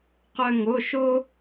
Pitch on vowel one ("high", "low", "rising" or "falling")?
high